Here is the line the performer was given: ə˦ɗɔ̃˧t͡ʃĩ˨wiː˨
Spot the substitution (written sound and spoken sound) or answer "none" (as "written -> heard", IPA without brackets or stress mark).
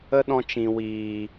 none